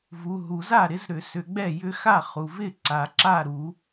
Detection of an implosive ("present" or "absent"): absent